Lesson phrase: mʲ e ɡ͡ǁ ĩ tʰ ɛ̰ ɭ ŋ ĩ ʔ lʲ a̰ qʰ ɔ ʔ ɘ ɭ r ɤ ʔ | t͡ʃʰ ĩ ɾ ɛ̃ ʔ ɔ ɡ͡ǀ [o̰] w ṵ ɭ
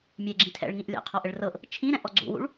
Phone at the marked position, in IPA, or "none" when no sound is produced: ṵ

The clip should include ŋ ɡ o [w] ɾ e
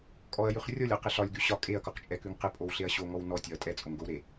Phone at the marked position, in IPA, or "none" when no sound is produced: w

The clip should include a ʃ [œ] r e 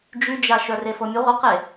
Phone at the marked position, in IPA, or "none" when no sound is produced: œ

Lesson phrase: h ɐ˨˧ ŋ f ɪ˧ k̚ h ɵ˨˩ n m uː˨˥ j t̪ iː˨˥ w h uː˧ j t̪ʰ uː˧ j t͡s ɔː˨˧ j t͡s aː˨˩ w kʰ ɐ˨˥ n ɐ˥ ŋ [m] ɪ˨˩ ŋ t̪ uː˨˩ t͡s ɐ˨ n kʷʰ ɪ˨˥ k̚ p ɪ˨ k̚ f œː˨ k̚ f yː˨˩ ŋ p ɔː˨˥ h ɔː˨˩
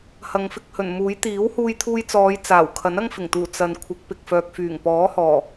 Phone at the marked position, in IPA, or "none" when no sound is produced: f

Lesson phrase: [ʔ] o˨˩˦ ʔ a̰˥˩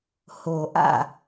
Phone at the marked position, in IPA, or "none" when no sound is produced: h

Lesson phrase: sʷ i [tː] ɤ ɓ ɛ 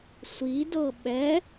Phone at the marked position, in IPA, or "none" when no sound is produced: d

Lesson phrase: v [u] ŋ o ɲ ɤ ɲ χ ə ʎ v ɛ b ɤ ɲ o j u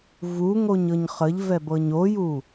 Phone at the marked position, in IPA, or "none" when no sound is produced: u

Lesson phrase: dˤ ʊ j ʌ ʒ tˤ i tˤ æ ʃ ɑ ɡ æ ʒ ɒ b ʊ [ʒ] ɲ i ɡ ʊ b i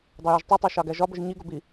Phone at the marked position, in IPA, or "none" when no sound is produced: ʒ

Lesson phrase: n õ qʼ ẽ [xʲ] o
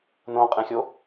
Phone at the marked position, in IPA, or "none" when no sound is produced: xʲ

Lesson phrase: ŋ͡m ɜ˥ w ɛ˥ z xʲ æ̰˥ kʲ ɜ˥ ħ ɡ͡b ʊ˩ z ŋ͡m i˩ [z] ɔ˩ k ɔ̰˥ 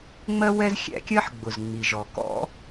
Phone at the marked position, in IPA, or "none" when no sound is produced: ʒ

